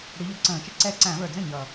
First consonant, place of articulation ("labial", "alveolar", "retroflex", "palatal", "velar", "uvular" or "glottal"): retroflex